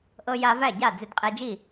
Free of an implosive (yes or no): yes